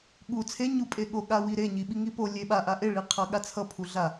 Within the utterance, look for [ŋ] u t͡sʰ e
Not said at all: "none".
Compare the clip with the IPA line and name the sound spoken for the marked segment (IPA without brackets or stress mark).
ɠ